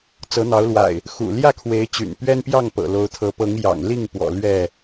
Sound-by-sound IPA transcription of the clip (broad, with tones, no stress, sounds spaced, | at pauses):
t͡s ɤ˨˦ n̪ ɑ˨˦ ʊ̯ l w a̰˨˩ ɪ̯ | x ṵ˨˩ l j ä˥˨ kʰ w e˨˦ ɪ̯ t͡ɕ y̰˨˩ n p ɥ ɛ˦ n p j ɑ˥˨ ŋ p ɤ̰˨˩ l o˨˦ ʊ̯ t̪ʰ ɤ˨˦ p ɤ˨˦ ŋ j ɑ̰˨˩ ŋ l i˥˨ ŋ p w ɔ̰˨˩ l ɥ ɛ˥˨